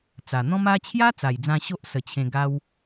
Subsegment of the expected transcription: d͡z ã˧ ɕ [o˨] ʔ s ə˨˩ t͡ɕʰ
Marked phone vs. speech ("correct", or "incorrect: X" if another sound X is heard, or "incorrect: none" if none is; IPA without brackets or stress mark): incorrect: o˦